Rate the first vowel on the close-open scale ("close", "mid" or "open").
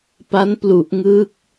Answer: open